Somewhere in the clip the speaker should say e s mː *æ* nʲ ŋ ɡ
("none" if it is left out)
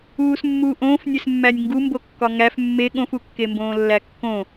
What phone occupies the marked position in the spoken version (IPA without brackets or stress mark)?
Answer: æ